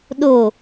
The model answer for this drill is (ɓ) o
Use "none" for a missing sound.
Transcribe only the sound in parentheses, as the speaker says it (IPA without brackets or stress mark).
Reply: ɗ